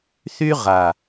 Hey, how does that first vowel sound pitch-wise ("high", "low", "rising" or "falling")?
high